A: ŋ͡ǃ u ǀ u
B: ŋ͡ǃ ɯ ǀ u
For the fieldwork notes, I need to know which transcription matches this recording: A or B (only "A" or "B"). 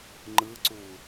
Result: B